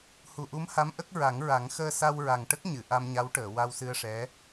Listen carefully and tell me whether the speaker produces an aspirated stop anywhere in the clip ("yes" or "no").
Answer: no